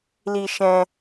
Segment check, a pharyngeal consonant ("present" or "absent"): absent